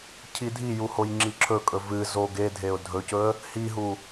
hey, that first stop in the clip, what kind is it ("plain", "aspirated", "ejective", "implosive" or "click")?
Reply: aspirated